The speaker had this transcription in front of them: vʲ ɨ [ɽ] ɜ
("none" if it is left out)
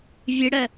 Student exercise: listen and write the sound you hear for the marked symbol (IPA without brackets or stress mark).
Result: ɽ